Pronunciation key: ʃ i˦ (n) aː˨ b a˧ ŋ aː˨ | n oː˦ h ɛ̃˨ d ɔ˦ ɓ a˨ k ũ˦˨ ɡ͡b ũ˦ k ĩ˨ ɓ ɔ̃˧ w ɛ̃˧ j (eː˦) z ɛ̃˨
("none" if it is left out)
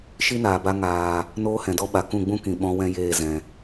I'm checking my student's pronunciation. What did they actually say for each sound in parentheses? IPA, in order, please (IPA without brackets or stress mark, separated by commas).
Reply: n, eː˦˨